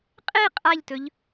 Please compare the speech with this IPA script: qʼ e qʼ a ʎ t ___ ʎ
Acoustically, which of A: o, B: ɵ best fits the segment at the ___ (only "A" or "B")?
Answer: B